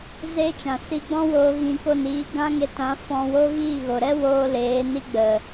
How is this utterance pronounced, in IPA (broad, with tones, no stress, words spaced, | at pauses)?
ze˦t͡ʃã˨ si˧ɡ͡bɔ̃˦woː˧ ɣĩ˧ko˦˨n iː˧ɡã˦ŋe˧tã˨˦ fɔ̃˧wo˦ ɣiː˦˨ɣo˨ɾɛ˦ woː˧ leː˨˦ni˦ɡ͡bə˨